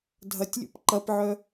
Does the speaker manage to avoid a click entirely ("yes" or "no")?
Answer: no